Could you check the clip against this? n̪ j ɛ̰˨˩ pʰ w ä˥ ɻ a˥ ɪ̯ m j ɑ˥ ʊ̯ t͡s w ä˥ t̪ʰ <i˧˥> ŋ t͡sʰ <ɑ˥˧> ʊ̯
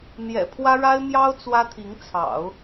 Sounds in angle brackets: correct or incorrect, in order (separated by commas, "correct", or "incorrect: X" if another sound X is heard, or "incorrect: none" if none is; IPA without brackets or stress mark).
correct, incorrect: ɑ̰˨˩˦